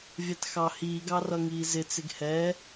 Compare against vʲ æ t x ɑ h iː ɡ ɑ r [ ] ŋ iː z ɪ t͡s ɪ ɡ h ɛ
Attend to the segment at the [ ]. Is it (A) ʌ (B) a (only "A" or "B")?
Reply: A